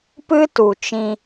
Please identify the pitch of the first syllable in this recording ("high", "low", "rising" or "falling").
high